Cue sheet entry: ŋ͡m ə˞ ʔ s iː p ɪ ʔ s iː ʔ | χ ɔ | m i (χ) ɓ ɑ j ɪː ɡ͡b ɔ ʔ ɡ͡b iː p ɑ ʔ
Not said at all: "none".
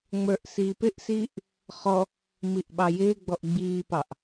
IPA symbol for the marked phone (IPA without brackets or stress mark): ʔ